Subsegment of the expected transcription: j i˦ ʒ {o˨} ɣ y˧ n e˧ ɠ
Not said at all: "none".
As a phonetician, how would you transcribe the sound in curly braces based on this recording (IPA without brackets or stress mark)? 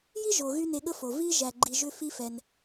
o˨